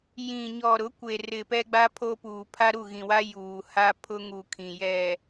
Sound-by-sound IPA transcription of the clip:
j ĩ˨ ɲ ɔ˨ ɾ ʊ˨˦ kʷ e˨ r ɪ˨ p ɛ˦ ɡ͡b a˦ pʰ o˦ p uː˨ pʰ a˦ ɾ u˦˨ ɣ ĩ˨ w a˦ j uː˨ h a˦ pʰ ʊ˦ ŋ u˨ kʰ ĩ˨ j ɛ˨

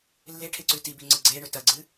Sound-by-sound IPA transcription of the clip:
lː e ʈʰ e ǀ ʉ t i b i ŋ͡ǀ ɨ ɡ͡ǀ e ɳ ɵ t ɐ ɡ͡ǀ ɨ

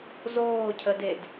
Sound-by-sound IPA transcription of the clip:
z oː cʰ ə d e d

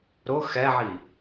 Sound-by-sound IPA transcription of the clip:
ɾ ʊ x ɛ ʕ i

